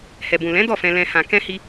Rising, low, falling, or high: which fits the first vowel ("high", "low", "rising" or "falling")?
low